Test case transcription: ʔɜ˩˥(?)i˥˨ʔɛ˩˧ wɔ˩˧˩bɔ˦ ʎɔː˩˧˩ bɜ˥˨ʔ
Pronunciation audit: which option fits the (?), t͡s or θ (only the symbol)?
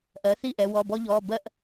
θ